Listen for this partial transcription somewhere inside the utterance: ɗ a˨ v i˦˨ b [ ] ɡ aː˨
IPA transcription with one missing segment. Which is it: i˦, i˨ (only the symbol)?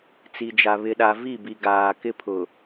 i˨